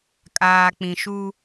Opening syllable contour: low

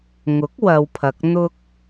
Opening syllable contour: rising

